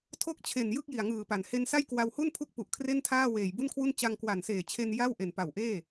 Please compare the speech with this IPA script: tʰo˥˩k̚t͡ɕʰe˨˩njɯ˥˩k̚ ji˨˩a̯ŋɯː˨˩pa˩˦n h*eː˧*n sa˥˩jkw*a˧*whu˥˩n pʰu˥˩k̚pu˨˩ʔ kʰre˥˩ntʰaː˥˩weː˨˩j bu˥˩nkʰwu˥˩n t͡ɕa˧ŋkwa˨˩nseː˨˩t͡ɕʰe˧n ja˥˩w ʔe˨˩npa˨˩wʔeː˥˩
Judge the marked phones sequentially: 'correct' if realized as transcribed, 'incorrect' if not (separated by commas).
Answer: incorrect, correct